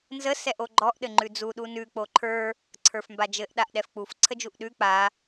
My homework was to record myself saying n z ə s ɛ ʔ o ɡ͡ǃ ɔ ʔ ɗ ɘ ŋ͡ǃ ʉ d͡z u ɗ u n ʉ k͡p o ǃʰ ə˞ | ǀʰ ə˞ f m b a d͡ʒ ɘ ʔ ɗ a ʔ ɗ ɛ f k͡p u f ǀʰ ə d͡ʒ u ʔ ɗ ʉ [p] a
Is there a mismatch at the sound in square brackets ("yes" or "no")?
yes